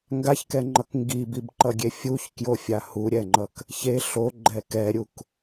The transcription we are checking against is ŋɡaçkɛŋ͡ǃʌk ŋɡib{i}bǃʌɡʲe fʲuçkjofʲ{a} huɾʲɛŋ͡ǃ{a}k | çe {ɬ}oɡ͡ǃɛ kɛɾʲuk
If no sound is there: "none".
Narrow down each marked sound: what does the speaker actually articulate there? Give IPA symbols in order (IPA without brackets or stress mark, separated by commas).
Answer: i, a, ʌ, ɬ